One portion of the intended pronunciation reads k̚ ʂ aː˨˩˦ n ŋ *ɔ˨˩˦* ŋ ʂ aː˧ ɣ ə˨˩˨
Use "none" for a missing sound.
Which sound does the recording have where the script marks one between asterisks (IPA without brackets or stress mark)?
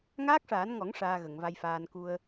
ɔ˨˩˦